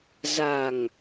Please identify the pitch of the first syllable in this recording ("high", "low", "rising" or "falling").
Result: low